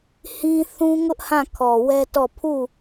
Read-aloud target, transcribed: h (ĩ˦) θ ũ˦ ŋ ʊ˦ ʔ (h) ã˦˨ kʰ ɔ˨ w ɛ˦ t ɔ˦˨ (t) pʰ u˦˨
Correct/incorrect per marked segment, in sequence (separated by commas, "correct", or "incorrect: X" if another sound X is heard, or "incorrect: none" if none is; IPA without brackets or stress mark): correct, correct, incorrect: none